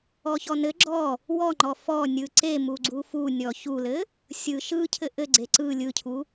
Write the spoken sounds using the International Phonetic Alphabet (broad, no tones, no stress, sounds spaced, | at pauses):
ɔ ç ɔ n ɘ ɡ͡ǁ ɔ | w ɔ ŋ͡ǃ ɔ f ɔ nʲ ɯ ǀ e m u ɡ͡ǀ u f u nʲ ɔ ç u l ɘ | sʲ ɯ ʃ ɯ cʰ ɘ ʔ ɘ ɡ͡ǀ e ǀ ɯ lʲ ɯ cʰ u